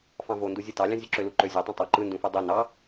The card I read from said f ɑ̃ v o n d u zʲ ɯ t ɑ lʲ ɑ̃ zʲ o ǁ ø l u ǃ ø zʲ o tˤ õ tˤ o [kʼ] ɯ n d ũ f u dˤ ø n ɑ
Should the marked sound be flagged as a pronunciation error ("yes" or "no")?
yes